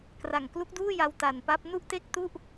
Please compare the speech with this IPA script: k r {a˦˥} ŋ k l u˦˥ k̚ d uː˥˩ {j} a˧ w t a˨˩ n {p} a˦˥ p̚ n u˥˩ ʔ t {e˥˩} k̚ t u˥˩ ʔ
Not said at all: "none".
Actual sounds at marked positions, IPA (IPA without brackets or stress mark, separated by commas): a˨˩, j, p, e˥˩